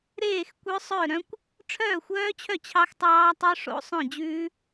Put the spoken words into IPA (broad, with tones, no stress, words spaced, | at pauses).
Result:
ɾeː˥˩xkʷœ˦˥sˤœ˥˩ ɾœ̃˦˥kʷ | ʈ͡ʂʰœː˥˩xʷœː˦˥t͡ɕʰœ˥˩ t͡ɕʰɑ˦˥xtˤɑː˦˥ tˤœ˦˥ʂo̰˦˥ sˤœ̃˥˩ d͡ʑʉː˦˥